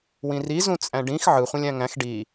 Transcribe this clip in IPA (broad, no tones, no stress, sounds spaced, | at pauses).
w ĩ r i z ũ t͡sʼ æ̃ ɖ ĩ x ʕ ɯ χʷ ĩ lʲ æ̃ ŋ æ̃ x ɖ i